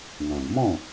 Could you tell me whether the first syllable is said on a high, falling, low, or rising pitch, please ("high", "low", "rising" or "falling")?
low